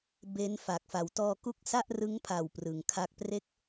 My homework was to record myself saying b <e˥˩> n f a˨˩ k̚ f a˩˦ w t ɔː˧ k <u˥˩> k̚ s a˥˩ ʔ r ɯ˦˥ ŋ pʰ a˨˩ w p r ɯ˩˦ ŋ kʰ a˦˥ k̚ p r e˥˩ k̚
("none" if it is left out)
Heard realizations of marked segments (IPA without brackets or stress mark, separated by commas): e˦˥, u˥˩